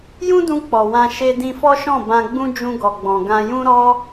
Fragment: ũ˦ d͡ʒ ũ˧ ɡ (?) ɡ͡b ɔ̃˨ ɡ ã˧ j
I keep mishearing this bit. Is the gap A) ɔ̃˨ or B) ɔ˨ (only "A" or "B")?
B